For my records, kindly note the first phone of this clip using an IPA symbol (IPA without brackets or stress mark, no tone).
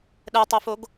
ɗ